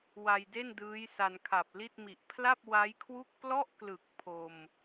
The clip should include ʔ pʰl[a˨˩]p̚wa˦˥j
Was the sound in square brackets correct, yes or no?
no